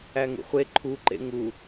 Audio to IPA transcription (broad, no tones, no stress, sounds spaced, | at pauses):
æ ŋ ṵ χʷ e ǃʰ u ǃ ḛ ŋ u